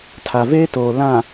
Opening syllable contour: low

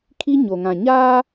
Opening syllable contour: high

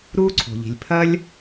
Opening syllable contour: high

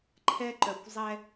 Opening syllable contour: high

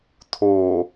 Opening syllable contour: low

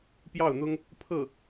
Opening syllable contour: falling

